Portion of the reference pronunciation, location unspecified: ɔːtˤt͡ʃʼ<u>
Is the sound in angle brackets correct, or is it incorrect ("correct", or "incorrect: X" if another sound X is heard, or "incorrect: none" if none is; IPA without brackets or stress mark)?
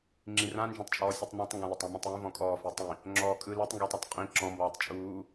incorrect: uː